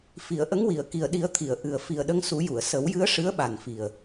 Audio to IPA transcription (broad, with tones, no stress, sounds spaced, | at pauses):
f i˨˩˨ ə̯ ʔ ə˧˥ ŋ w i˨˩˨ ə̯ k i˨˩ ə̯ ɗ i˨˩˦ ə̯ t̪ʰ i˨˩˨ ə̯ ʔ ɨ˨˩ ə̯ f i˨˩ ə̯ ɗ ə˧ ŋ s u˨˩˦ j u˨˩˨ ə̯ s ə˨˩˦ w j ɨ˧˥ ə̯ ʂ ɨ˧˥ ə̯ ɓ a˨˩ n f i˨˩ ə̯